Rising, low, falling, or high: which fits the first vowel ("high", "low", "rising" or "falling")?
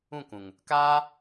falling